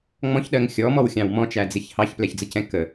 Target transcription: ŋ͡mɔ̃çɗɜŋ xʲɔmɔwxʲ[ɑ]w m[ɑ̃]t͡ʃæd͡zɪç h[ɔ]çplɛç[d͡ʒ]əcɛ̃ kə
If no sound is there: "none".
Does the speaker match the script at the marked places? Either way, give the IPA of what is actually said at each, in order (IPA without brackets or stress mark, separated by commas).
ɑ̃, ɔ̃, ɑ, d͡z